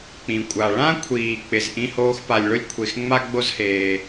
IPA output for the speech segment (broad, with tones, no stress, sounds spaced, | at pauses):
k͡p ĩ˩ kʷʼ a˩ ɭ ã˥ kʷʰ iː˩ k͡p ɪ˩ z ʔ ĩ˥ h oː˥ x p a˩ lʲ ɭ ʊ˥ lʲ kʷʰ e˩ x ŋ͡m a˥ ɡ͡b o˥ z h eː˩